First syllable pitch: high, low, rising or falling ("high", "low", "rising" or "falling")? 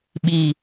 low